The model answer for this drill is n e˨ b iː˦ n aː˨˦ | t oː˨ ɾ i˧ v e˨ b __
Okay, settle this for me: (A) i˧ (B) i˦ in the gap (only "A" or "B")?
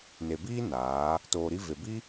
B